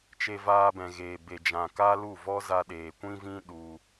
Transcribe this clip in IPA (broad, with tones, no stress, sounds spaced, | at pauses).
t͡ʃ e˧ v aː˧ b ɛ̃˨ ɣ eː˨ b e˨ d͡ʒ ã˨ k a˦ l u˦˨ v ɔ˦ z a˧ ɗ eː˨ kʷ ĩ˦ v ĩ˦ ɗ u˧